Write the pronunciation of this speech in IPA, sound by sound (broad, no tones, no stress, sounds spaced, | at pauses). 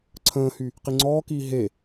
ǀʰ ə̃ː h y | q i ŋ͡ǀ ɔː k iː ɦ e